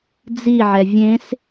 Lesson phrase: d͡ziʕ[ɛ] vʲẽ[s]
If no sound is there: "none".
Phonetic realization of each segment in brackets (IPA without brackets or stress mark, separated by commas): ɛ, s